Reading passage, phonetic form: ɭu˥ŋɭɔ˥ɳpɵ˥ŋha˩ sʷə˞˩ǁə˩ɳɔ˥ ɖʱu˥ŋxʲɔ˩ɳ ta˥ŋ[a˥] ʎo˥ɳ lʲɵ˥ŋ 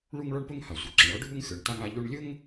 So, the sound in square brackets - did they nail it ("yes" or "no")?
yes